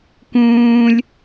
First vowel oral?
no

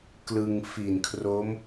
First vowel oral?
yes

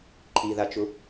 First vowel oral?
yes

